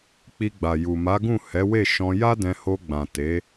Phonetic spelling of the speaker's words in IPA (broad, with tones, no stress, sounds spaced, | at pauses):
k͡p i˧ ɡ͡b a˨ j u˨ m a˨˦ ɡ ũ˦˨ h ɛ˨˦ w e˦˨ ʃ ɔ̃˧ j a˦ d ɛ̃˧ h o˧ ɡ͡b ã˨ t e˨˦